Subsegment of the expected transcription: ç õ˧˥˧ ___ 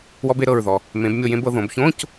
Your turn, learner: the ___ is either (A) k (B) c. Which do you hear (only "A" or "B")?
B